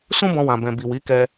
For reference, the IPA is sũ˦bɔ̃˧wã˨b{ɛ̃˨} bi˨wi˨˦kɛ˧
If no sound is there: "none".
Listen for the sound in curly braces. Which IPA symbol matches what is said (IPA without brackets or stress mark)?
ɛ̃˨